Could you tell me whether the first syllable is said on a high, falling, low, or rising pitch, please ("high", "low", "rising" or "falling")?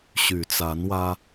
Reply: low